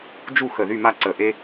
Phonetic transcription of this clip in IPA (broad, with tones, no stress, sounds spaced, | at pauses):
d͡ʒ u˥˨ x ə˧˩ ð y˥˨ m a˥˨ ǀ ə˧˩ ʔ e˥